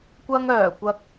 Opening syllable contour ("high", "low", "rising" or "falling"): high